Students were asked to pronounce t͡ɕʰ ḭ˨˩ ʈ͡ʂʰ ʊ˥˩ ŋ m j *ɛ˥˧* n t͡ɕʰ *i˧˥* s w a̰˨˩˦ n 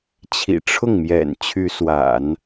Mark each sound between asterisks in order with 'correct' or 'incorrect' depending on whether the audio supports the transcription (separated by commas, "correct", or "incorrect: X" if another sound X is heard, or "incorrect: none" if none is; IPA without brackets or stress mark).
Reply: incorrect: ɛ̰˨˩, incorrect: y˧˥